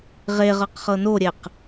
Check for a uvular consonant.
present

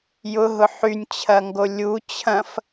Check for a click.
absent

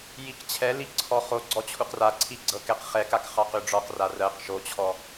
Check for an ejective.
absent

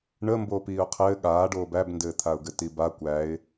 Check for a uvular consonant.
present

